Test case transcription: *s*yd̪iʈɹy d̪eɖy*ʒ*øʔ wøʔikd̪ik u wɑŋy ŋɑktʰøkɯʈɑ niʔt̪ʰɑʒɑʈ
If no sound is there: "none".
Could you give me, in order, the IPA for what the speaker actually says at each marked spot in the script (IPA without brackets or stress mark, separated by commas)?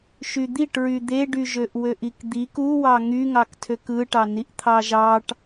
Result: ʃ, ʒ